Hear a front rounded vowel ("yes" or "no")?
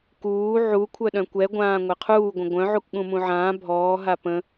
yes